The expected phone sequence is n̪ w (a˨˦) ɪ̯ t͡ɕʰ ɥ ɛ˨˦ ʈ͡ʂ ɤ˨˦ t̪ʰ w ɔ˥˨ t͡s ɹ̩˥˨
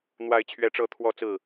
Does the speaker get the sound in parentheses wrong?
no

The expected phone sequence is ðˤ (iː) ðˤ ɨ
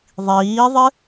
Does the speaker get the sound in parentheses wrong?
no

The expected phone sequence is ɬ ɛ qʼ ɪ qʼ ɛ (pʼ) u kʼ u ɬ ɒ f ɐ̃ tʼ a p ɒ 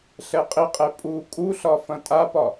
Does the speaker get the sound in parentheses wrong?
no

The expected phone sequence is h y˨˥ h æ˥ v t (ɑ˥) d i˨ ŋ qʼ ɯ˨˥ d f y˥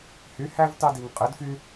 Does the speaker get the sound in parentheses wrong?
no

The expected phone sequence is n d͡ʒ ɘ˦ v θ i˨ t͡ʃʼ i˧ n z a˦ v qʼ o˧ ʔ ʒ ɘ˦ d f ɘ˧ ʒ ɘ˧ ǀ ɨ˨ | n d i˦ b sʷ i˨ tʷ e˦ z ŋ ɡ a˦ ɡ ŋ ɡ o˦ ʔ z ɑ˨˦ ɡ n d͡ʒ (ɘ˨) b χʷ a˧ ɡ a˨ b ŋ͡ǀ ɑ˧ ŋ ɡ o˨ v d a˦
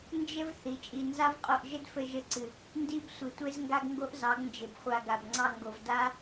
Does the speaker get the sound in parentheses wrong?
no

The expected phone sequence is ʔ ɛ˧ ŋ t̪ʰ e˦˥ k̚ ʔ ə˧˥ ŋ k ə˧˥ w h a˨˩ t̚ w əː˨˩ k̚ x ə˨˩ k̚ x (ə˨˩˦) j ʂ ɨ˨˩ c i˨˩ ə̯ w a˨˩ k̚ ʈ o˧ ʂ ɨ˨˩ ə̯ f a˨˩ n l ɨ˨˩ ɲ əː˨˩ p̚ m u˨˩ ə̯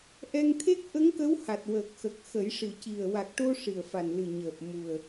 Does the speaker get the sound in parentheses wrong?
no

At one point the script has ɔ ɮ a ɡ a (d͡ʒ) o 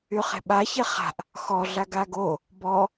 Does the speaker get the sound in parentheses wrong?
yes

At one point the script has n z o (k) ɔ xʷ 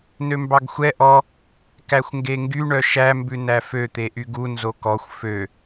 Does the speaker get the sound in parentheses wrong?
no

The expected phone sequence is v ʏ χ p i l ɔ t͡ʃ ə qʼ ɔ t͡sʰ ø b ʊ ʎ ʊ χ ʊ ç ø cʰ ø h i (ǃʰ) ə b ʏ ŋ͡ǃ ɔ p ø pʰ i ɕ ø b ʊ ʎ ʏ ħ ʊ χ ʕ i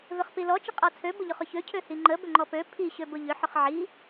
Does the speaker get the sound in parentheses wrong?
yes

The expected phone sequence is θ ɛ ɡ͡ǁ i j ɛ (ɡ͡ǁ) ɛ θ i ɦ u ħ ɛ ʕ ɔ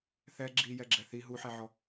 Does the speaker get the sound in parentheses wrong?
no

